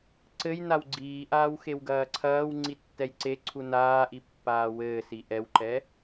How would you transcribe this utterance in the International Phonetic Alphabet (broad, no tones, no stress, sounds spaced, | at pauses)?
ǀ ɘ j n a w ɡ͡ǀ iː ʔ aː w x e w ɡ ɐː ǀʰ ɐː w ŋ͡ǀ i tː ɛ j ǀ e ǀʰ u n aː ʔ i pː aː w ɘː s i ʔ ɛ w ǃ ɛ